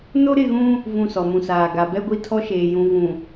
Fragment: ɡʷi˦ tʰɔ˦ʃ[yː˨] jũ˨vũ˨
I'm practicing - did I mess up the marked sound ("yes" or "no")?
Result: yes